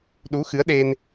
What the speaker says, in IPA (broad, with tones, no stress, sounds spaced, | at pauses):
ɗ u˨˦ x ɨ˨˦ ə̯ ɗ e˧ n